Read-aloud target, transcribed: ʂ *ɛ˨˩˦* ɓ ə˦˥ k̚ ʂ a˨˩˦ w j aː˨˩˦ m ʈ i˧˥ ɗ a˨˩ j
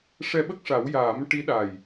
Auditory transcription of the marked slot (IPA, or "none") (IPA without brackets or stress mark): ɛ˧